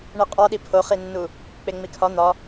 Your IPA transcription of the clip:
ɳ i qʼ ɒ ɗ i pʰ o χ i nː u | k͡p e ŋ͡m i kʰ ɒ n̪ ɒ

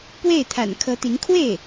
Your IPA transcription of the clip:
p w e˥˩ ɪ̯ t̪ʰ a̰˨˩ n kʰ ɤ˧˥ t̪ i˧˥ ŋ kʰ w e˥˩ ɪ̯

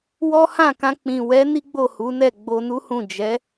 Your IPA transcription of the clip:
w ɔ˦ h ã˦˨ k ã˧ k͡p ĩ˨ w ɛ˨˦ n i˦ ɡ͡b o˦˨ h u˨˦ n ɛ˦˨ ɡ͡b o˧ n u˦ h ũ˦˨ d͡ʒ ɛ˨˦

